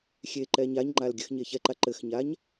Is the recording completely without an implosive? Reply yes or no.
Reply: yes